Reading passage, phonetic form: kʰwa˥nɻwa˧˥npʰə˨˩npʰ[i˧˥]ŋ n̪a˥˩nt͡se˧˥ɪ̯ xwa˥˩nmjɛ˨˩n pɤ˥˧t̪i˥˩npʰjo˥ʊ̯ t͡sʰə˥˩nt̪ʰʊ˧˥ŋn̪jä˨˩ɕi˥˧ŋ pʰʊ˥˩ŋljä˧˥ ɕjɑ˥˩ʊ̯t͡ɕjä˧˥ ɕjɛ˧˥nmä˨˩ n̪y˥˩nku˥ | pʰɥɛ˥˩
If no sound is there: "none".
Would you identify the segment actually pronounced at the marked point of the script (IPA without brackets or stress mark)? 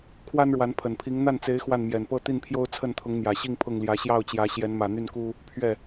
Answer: i˧˥